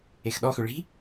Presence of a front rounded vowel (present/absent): present